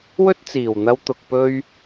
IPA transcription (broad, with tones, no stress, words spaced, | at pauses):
wɵ˥t̚t͡siː˨˩wn̪ɐ˧w t̪ʊ˨k̚pɵ˧ɥ